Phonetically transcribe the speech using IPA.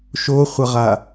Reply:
ʃ o χʷ ʌ ʁ a

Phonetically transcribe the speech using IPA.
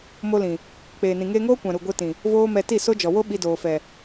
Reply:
m o˧ l ĩ˨ | k͡p eː˨ n ĩ˨ ŋ eː˧ ŋ oː˦ kʷ ã˨ ɾ u˨ ɡʷ e˧ t ĩ˨ | v oː˦ m ɛ˧ t i˦˨ s o˦ d͡ʒ ɔ˨ w o˦ ɓ i˧ d oː˨ f ɛ˨

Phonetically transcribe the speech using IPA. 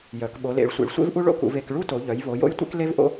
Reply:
j œ˩˧ k ɓ o˩˧ l ḛ˩˧ ɭ sʷ ḛ˩˧ ɭ sʷ ḛ˥ v ʔ u˥ ɭ o̰˥ k ṵ˩˧ v e˩˧ k ɭ u˥ t o˩˧ ʎ œ˩˧ j v o˩˧ j o̰˥ j tʷ ḛ˥ k l e˥ v ʔ o̰˥

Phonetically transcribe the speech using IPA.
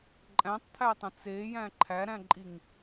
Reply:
ǃʼ æ̃ tˤ t̪ʰ æ tˤ ə̃ t͡s e j æ̃ ǃʰ æ ɾ æ̃ ǃʼ i ŋ

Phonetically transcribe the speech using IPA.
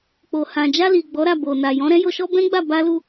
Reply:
k͡p o˨ h ã˨ d͡ʒ a˧ l i˨ ɡ͡b ɔ˨˦ ɾ a˦˨ b o˨ n a˨ j ɔ̃˨˦ ɾ ɛ̃˦ j o˧ ʃ ɔ˦ b ɛ̃˦ ɡ͡b a˦˨ b a˧ l u˧

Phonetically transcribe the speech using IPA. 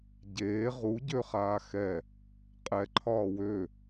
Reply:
ɟ eː ʁ u ɟ ø χ aː x ɛ | qʼ ɛ ǃʰ ɒː w ø

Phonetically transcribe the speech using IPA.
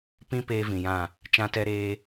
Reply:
p ĩ˦ p eː˦ v ĩ˨ j ã˦˨ | t͡ʃ ã˦ t ɛ˦ ɾ eː˦

